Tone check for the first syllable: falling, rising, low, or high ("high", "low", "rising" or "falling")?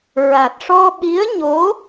low